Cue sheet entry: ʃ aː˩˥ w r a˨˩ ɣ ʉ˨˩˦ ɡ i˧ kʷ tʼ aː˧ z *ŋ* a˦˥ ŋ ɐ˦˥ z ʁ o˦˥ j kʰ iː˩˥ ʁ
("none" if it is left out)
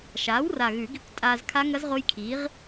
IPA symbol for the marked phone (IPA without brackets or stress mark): kʰ